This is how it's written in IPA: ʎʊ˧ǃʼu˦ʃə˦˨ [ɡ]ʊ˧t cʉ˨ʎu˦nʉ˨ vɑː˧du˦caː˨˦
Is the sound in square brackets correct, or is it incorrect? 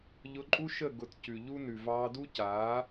correct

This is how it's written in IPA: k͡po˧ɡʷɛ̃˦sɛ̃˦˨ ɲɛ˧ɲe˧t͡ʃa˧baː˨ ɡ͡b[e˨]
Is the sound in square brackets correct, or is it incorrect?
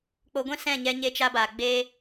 incorrect: e˧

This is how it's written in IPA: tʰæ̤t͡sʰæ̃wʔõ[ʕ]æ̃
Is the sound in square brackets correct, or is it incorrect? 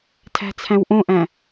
incorrect: ʔ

